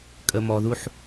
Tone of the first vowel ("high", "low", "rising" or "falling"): low